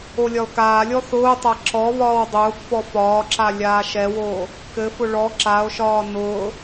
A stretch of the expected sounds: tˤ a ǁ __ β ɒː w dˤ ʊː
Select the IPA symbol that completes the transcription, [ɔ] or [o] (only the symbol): ɔ